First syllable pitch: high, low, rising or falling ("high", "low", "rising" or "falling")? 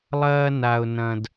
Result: high